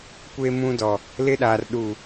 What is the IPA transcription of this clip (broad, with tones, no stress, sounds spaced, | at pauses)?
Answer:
kʷ e˦ m ũ˦ d ɔ˨ | l ɪ˦ ɗ a˨ r ɗ u˨